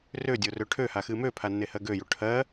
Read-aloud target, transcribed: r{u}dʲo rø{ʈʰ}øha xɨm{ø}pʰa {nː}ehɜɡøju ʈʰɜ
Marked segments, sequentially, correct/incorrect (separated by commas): incorrect, correct, correct, correct